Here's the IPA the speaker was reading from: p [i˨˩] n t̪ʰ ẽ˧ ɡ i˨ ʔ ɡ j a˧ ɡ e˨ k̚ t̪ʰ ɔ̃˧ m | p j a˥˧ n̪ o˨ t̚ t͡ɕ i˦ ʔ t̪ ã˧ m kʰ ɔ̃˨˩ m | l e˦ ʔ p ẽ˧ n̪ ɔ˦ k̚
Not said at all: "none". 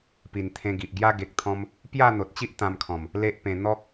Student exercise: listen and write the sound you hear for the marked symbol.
i˨˩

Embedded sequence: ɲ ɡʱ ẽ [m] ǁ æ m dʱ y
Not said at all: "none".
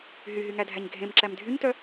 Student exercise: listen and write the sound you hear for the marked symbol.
m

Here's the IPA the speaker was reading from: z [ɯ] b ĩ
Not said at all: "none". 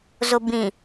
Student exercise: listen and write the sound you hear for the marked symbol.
ʊ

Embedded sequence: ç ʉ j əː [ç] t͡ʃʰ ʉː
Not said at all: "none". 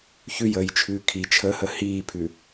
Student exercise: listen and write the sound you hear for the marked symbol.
j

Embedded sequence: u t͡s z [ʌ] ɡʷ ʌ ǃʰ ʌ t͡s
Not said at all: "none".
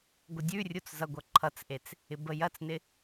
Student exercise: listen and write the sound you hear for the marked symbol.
ʌ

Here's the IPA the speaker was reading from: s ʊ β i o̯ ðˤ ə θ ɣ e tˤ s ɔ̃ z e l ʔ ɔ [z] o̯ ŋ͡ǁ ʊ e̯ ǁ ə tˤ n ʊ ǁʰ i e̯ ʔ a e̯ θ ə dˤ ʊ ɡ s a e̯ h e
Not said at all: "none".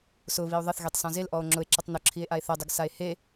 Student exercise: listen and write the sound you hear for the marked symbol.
none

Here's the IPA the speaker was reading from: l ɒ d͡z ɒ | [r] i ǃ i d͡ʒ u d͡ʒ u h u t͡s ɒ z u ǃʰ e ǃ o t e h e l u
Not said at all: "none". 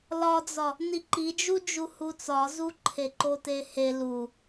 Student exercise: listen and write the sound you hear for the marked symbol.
n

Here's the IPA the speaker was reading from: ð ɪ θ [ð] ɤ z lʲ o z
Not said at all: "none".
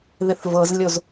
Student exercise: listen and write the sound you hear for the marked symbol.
v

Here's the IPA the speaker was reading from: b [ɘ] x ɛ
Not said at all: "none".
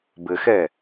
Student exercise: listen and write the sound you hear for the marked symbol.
ɘ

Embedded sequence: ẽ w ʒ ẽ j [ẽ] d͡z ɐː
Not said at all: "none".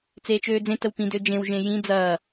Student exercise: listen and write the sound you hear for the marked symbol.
ĩ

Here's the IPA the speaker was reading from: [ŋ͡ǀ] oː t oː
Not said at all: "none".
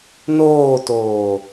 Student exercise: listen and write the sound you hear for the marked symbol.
n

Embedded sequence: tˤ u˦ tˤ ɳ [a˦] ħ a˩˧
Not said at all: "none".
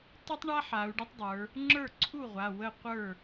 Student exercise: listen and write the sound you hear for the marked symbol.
a˦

